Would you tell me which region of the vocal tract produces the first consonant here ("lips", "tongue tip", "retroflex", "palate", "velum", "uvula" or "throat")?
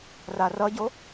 tongue tip